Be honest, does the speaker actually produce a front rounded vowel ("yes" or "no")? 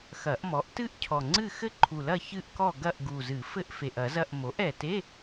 no